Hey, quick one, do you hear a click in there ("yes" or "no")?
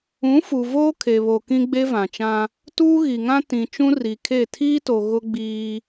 no